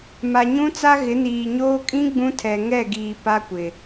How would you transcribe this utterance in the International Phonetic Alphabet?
ma˨ɲũ˦t͡sa˦ ɣɪ˨˦niː˨ɲoː˦ kʼĩ˦ ɡ͡bũ˦tʰɛ˨ ŋɛ˦˨ɡiː˨ pa˦kʷɪ˨

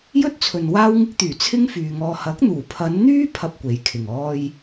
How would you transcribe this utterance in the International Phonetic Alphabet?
jɵ˥t̚t͡sʰɵ˨n waː˥wŋɪ˥k̚t̪yː˨˩ t͡sʰɪ˥ŋfyː˨ŋɔː˧ hɐ˨˥k̚n̪uː˨˩pʰɐ˨˧nn̪yː˥ pʰɐ˥p̚kʷe˨˥jkʰɪ˨˩ŋɔː˥j

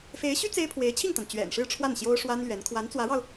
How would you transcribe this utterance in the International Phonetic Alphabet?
fe˧˥ɪ̯ɕy˥ t͡se˥ɪ̯ pʰwe˧˥ɪ̯t͡ɕʰi˥˩ŋt̪a˩n t͡ɕɥɛ̰˨˩nʂɻ̩˥˧ʈ͡ʂʰwa˥˩n ɕjo˥ʊ̯ʂwa˥nlɥɛ˧˥n kʰwa˧˥nt͡swä˧˥ɻɑ˧ʊ̯

